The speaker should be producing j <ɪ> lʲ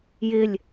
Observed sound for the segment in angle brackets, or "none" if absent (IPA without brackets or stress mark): ɪ